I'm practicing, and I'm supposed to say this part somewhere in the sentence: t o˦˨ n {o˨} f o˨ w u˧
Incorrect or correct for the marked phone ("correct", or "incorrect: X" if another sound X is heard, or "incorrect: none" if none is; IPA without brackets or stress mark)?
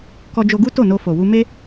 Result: incorrect: o˧